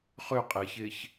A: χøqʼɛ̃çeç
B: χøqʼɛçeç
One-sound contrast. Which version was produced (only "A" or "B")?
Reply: B